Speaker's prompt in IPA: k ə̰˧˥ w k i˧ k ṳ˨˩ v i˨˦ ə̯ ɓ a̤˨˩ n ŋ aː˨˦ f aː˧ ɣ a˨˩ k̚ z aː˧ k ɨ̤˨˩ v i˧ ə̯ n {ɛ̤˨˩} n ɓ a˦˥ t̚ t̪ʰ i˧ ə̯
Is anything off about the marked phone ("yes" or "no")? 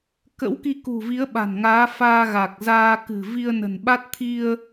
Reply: yes